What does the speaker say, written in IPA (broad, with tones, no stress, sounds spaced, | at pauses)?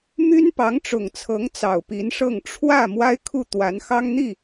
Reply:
m y˥ n p ɑ˧˥ ŋ ʈ͡ʂ ʊ˨˩ ŋ t͡sʰ ɤ˧˥ ŋ t͡s ɑ˨˩ ʊ̯ p i˧˥ n ʂ ɤ˥˧ ŋ ʈ͡ʂʰ w ä˥˩ m w a˥ ɪ̯ kʰ u˥˩ t̪ w a˧˥ n x ɑ˥ ŋ n̪ i˥˩